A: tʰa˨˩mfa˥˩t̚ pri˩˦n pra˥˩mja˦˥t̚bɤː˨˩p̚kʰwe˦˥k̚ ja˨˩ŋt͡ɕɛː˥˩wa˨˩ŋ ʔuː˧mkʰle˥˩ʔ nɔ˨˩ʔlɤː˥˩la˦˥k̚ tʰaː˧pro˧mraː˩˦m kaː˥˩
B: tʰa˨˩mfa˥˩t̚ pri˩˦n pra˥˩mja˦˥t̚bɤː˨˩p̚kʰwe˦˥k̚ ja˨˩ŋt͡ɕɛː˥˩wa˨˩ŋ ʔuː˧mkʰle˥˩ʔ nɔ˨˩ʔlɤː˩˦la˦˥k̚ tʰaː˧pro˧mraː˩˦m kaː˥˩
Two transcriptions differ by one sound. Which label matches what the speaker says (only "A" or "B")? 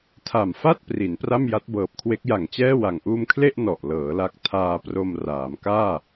B